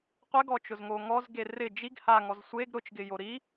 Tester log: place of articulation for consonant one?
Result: uvular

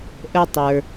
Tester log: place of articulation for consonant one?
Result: glottal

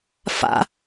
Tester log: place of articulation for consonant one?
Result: labial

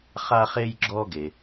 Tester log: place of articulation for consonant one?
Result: uvular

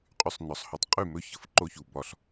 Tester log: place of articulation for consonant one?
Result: uvular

